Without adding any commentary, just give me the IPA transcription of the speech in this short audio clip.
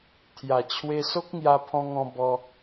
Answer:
t̪ʰja˨˩t͡ɕʰwe˧ so˦k̚ŋja˧pʰɔ̃˧ŋɔ̃˧ bɔ˧

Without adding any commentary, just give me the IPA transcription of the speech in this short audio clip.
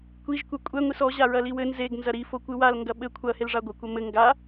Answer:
kʷiʒ kʷɛkʷʼɛ ŋʷisɔ ʑaɹɐliwɘ nzeɡ nzɐɾi fokʷɨwal ŋɡɐɓɘ kʷʰɐ helʐaɡʷɐ kʷɐmɘ ŋɡa

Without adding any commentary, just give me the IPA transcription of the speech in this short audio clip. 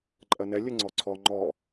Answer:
ǃʼɜnɛ lʲɘŋ͡ǀɔǀʰɔ ŋ͡ǃɔ

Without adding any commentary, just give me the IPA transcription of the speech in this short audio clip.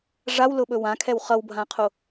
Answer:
ʐawlʊɓɵ wãkʰɛw χʌwbʱãqʰo

